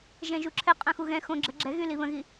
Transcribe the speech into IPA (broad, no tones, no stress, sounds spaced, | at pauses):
ʒ ɛ̃ ʒ u ǁʰ ɛ qʼ œ̃ x u ɣ ɛ̃ x õ ɡ͡ǁ ə ɡ͡ǁ ɛ ɣ y l i β ə̃ ɣ i